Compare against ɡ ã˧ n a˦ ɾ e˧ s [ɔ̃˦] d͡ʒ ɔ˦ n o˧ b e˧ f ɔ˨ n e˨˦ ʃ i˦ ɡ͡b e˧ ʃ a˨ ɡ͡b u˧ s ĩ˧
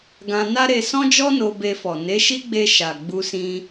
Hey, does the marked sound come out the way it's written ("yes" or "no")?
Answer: yes